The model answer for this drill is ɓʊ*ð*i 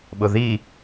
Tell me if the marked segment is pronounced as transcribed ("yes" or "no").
yes